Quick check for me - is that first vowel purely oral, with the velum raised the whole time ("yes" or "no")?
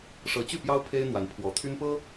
yes